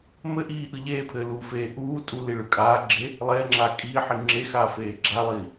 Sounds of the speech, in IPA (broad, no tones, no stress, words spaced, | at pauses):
mɘʔiː ʔɯʎeːpʰɘː lufeː ʔuː tʼuli ɭɯkʼaːɡ͡ǁe | lˠeːŋ͡ǁaː kʼiːħi ŋ͡ǁexaː feːɡ͡ǁalˠiː